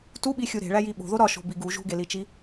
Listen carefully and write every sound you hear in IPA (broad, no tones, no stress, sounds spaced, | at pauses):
t u ɓ i xʲ u ɾ e̤ ɭ æ j i ɓ o̤ ð o ɾ ɒ ʃ o̤ b i ɡ u ʒ ṳ ɡ e l i t͡ʃ i